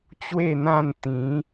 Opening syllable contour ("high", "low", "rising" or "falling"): falling